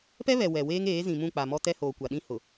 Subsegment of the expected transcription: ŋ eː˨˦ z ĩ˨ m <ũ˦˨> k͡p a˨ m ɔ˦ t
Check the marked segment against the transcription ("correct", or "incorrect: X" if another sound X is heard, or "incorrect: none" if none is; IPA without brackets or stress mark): correct